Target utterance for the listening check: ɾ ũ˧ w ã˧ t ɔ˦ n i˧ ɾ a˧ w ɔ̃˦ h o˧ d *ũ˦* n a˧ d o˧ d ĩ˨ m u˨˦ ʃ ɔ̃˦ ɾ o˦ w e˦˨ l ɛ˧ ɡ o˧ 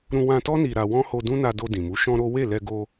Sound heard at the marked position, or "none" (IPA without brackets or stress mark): ũ˦